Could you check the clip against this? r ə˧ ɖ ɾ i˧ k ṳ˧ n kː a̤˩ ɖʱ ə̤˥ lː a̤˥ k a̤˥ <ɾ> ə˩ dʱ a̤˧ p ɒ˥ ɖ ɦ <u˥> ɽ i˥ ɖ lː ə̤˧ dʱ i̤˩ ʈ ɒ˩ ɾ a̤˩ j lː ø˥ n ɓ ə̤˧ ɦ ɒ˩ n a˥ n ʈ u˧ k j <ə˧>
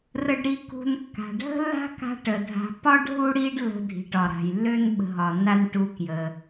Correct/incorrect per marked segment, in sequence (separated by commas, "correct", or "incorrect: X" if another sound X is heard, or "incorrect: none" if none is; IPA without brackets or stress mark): incorrect: ʈ, correct, incorrect: ə˩